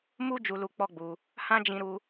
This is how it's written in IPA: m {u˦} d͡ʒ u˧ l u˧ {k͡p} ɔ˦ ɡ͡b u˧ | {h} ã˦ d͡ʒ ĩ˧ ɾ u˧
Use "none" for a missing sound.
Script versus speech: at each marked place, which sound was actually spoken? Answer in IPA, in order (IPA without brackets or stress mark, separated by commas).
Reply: u˦, k͡p, h